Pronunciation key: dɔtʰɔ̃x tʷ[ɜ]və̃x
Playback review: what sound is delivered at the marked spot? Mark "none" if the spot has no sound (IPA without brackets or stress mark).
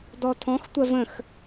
ɜ